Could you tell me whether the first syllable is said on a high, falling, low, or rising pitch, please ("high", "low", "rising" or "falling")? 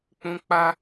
high